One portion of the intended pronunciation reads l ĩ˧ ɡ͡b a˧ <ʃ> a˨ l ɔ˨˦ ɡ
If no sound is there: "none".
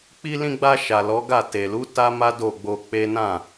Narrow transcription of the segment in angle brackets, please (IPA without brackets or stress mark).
ʃ